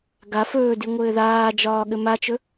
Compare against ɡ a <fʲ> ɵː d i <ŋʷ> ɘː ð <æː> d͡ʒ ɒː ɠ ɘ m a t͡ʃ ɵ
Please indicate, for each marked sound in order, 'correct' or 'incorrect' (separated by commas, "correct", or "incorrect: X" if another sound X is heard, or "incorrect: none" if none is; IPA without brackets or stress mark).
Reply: incorrect: f, correct, incorrect: aː